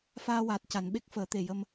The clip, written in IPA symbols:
faː˧waː˨˩t̚ ca˨˩˨nɓe˦˥k̚ fəː˨˩˦t̪e˨˩ jə˧m

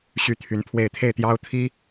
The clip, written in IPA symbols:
ɕy˥t̪ʰy˧˥npʰwe˥˧ɪ̯ t̪ʰe˥˩ɪ̯t̪jɑ˥ʊ̯ t̪ʰi˥

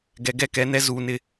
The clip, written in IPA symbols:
ɡɛ˨ɡɛ˦kɛ˨˦nɛ˦ zuː˨nɪ˦˨

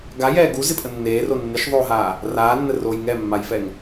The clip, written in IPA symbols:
ɡajɛː ɡuzɪpʼə nːeːro nːɪʃðˤoːɦaː | raːnːəroːj ŋɛmːajfɛŋ

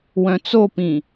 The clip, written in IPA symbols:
wœ̃t͡sopĩ

